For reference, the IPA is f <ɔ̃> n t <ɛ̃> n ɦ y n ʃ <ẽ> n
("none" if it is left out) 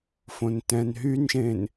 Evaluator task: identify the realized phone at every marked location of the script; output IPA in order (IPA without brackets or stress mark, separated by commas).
õ, ɛ̃, ẽ